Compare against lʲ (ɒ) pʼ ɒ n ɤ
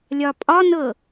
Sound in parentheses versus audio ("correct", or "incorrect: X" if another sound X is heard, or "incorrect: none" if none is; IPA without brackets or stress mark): correct